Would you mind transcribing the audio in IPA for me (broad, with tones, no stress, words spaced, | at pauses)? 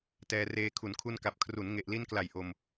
tɛː˧reː˧ kʰu˩˦nkʰu˧nka˨˩p̚ kʰru˩˦nŋe˨˩ʔli˧nkla˨˩j ʔo˧m